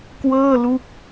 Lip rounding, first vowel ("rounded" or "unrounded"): unrounded